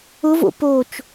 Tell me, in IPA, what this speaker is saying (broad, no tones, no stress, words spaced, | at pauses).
ʊvo̰ pot͡ʃ